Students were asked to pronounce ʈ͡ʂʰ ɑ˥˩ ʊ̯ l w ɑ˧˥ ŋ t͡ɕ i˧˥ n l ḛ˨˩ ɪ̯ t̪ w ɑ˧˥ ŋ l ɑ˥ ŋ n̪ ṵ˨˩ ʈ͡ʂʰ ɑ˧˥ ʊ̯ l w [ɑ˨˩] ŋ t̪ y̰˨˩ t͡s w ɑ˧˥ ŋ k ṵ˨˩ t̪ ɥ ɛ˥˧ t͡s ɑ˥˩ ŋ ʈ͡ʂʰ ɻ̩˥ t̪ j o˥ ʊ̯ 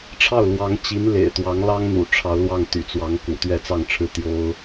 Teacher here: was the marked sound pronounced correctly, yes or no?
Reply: no